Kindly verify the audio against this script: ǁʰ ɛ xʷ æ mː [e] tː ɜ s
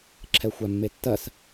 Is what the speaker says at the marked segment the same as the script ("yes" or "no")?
yes